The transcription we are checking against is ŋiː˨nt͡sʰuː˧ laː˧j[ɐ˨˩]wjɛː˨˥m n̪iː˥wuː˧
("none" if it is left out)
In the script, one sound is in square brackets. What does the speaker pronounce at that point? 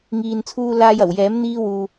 ɐ˨˩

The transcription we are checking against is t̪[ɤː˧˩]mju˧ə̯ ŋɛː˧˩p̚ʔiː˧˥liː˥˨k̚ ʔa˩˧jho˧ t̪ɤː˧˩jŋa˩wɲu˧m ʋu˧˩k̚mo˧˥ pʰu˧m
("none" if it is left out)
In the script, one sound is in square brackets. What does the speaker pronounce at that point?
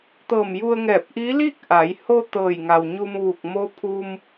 ɤː˧˩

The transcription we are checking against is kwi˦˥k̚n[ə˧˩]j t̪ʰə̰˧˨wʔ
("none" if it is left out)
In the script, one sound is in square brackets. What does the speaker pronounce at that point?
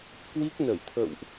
ə˧˩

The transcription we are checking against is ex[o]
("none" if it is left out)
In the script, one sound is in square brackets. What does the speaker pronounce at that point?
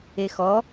ɔ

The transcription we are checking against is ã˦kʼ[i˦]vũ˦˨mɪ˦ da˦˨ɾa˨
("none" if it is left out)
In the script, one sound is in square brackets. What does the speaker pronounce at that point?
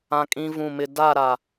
ĩ˦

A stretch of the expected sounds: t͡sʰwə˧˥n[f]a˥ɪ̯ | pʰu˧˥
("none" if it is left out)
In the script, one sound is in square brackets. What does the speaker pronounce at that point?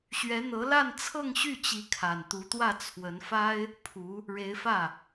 f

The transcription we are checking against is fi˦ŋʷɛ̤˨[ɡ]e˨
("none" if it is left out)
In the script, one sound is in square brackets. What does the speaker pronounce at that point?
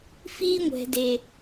d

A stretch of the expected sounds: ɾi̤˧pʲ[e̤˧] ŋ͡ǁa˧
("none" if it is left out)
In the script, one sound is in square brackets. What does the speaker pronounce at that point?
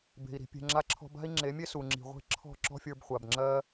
e̤˧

